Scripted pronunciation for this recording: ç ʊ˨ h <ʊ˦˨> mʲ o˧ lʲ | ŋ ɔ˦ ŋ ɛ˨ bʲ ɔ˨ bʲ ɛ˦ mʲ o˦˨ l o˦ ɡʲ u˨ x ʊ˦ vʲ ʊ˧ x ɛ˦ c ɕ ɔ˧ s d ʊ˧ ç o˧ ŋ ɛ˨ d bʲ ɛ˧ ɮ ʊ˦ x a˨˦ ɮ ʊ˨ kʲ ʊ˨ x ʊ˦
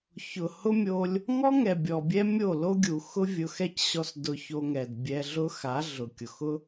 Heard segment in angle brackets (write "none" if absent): ʊ˦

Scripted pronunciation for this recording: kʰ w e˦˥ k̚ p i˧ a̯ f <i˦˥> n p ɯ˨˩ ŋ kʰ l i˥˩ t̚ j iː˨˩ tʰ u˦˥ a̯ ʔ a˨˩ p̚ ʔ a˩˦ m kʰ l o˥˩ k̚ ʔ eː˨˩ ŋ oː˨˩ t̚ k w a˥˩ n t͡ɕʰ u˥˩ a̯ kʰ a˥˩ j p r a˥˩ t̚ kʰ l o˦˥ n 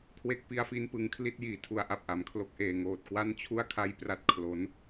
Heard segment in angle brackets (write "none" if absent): i˦˥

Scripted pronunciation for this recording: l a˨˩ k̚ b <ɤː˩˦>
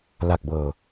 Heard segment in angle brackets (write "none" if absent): ɤː˨˩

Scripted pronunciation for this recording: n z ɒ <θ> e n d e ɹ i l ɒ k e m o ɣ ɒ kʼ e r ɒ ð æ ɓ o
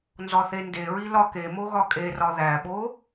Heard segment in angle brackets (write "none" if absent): θ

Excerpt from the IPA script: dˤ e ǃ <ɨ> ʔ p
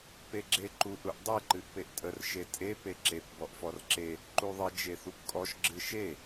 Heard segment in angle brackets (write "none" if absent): ɨ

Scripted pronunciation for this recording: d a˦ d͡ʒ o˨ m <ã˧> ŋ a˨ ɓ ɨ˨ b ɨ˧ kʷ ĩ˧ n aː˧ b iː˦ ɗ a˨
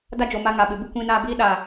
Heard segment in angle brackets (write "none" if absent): a˧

